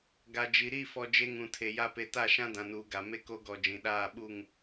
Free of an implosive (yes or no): no